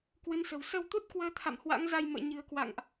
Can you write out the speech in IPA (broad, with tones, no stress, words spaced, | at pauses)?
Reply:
kwɨ˨˦nsə̤˨˩w sə˧wt̪u˦˥t̚kwəː˨˦t̪ʰa̰˧˨m hwa̰˧˥ŋza˧jmə̰ː˧˨ ɲɨ̤˨˩ə̯kwa̰˧˨ŋʔ